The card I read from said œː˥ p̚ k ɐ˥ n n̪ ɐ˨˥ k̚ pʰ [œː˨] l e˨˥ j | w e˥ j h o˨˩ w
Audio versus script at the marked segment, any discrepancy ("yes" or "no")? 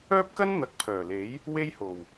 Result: yes